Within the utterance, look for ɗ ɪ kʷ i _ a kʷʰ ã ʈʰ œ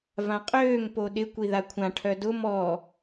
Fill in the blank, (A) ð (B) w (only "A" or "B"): A